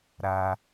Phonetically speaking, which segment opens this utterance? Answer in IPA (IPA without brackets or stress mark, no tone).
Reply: ɾ